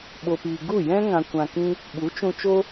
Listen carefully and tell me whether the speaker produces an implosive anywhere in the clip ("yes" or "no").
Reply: yes